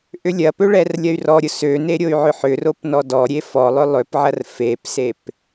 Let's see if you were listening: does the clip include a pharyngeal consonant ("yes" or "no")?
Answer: yes